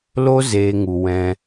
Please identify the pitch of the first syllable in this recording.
high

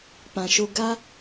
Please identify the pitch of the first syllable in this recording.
low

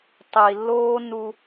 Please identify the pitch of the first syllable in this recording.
low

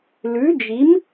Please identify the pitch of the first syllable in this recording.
rising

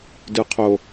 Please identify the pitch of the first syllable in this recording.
low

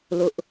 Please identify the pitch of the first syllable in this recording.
high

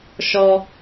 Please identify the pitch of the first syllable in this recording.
high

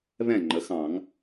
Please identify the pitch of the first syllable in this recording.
falling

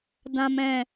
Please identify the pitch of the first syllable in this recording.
low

